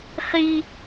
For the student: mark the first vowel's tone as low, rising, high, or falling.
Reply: high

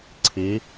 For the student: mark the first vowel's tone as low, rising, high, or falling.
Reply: rising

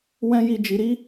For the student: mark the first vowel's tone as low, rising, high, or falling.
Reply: high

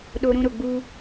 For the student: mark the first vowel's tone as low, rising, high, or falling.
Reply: high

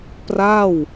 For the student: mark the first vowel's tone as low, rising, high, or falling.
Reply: falling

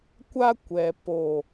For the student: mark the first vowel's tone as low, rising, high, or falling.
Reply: high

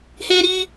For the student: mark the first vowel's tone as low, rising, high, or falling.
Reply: high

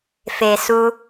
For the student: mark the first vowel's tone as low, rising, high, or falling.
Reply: low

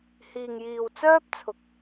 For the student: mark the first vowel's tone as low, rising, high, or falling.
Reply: low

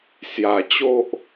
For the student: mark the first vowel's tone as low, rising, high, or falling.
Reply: low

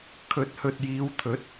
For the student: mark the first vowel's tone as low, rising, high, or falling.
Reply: rising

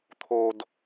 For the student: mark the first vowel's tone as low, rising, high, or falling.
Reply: high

